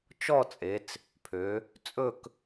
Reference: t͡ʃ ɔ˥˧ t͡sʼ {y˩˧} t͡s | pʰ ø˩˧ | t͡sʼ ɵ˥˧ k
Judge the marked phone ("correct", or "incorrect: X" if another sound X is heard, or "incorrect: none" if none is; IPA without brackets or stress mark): incorrect: e˩˧